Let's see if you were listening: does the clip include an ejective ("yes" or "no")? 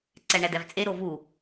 yes